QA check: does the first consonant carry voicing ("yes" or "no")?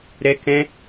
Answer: yes